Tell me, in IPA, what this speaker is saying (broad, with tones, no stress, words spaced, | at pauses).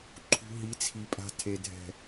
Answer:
ǃʰṳ˧ɦi˨˦t͡sʰi˨pʼa̤˧ tʰe˨dʱɛ̤˨